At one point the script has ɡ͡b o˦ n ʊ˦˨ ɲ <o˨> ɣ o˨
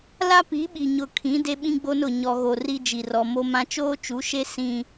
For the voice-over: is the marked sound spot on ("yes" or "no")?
no